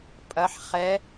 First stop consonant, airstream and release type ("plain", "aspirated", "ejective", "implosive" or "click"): ejective